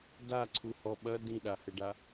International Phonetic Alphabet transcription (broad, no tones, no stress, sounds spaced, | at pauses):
d a ǀʰ u h ɔ ɓ ɐ d ĩ ɗ a h ɘ ɖ a